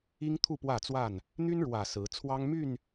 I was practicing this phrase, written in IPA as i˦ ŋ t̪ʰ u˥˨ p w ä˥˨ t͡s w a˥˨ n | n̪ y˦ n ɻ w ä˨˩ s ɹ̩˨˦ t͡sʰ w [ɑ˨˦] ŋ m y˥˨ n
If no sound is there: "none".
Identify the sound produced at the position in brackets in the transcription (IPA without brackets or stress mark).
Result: ɑ˦